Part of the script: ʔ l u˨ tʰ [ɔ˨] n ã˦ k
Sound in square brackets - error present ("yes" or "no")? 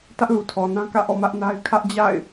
no